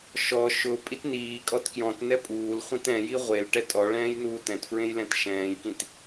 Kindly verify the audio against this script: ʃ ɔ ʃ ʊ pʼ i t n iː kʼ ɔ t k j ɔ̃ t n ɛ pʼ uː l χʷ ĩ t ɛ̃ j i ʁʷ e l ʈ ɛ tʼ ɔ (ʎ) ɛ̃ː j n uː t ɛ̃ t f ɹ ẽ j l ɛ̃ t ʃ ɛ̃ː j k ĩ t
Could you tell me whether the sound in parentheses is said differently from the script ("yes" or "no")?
yes